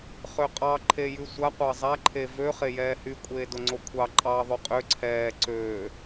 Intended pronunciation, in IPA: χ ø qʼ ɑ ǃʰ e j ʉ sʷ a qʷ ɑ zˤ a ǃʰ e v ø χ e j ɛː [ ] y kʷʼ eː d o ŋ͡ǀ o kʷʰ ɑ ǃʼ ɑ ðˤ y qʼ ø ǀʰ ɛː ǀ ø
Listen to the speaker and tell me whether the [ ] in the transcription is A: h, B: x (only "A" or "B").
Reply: A